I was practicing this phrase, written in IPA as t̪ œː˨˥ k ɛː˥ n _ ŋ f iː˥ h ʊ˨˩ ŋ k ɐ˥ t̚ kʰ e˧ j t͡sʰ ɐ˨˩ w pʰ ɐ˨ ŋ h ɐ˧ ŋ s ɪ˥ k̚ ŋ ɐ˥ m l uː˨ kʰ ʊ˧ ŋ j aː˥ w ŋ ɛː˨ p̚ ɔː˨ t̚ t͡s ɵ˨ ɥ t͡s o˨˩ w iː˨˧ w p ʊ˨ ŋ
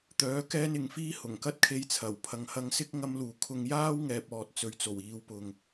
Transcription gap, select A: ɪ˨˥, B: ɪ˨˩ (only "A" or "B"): A